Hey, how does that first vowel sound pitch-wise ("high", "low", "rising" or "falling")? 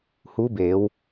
rising